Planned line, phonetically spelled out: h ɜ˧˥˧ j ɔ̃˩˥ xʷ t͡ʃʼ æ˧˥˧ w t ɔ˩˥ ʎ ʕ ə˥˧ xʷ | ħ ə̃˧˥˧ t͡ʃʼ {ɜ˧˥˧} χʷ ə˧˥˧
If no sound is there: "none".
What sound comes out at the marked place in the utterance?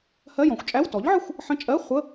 ɜ˧˥˧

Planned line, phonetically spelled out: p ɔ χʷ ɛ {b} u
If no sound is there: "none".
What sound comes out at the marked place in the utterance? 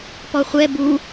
b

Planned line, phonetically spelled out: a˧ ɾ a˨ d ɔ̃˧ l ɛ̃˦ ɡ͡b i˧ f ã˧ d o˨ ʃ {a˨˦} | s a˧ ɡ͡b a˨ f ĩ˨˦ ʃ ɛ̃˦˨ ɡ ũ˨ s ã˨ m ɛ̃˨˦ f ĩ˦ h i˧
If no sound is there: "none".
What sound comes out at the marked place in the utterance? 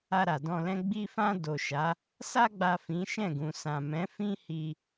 a˨˦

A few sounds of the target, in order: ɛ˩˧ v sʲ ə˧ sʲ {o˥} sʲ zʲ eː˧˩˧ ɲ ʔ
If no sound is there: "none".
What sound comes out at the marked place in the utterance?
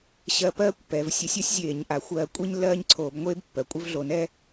o˥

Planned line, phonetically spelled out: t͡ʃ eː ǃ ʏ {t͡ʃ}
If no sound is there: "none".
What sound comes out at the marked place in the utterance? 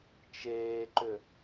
none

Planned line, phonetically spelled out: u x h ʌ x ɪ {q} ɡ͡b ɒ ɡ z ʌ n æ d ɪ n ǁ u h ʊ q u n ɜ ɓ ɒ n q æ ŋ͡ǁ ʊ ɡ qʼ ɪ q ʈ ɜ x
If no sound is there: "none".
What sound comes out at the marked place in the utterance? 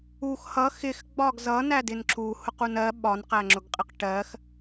x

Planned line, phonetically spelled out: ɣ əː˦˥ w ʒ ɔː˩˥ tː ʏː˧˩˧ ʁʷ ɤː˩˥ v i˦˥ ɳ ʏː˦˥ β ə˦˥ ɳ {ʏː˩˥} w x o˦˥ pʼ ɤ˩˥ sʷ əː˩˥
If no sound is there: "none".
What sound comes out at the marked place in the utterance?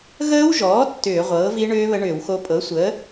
ʏː˧˩˧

